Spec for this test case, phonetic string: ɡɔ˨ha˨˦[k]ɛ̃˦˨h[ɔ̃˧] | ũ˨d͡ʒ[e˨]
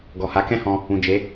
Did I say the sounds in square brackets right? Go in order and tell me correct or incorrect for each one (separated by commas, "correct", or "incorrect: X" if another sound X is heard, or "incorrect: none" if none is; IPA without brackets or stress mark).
correct, correct, incorrect: e˨˦